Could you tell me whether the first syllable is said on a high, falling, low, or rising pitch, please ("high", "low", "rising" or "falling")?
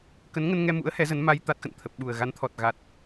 rising